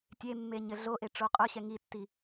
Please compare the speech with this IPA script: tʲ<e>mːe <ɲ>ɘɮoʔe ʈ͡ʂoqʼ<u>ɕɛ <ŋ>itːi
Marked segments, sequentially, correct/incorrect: correct, correct, incorrect, correct

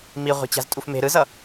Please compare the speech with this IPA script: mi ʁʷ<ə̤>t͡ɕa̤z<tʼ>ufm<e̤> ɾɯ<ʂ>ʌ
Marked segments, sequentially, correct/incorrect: incorrect, correct, correct, incorrect

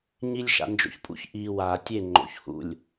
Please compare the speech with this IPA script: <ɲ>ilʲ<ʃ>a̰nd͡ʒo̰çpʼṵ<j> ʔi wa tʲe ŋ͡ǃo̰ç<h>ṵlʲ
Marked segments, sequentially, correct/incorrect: correct, correct, incorrect, correct

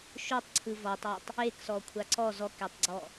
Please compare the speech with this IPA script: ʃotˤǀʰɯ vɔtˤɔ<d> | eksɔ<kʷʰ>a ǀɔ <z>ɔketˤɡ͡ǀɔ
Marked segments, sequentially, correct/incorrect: incorrect, correct, correct

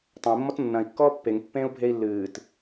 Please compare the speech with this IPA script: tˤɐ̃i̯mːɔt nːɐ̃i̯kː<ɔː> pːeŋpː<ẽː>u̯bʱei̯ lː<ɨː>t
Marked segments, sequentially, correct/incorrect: correct, correct, correct

